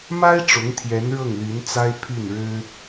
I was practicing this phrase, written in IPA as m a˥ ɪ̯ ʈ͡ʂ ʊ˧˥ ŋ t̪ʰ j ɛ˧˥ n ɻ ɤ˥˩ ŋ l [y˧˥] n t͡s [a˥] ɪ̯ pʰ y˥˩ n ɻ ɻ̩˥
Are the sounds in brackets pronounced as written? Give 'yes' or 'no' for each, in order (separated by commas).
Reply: yes, yes